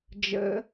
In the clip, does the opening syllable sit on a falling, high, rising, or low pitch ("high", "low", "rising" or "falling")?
rising